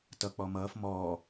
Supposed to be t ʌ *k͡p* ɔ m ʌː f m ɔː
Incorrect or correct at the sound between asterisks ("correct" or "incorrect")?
correct